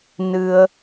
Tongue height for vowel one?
high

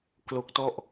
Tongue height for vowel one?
mid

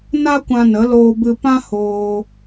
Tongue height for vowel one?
low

